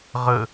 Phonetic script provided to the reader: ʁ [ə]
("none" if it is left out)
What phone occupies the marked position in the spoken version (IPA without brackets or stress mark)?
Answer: ə